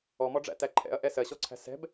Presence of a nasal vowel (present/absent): absent